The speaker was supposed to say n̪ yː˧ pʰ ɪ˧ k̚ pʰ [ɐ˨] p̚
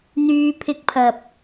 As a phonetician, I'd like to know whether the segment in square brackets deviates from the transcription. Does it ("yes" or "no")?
no